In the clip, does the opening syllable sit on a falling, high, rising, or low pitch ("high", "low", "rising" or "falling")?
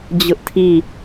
high